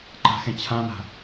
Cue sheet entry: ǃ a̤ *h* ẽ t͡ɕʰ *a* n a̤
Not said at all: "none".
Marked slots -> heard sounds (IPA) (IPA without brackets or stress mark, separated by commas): x, ã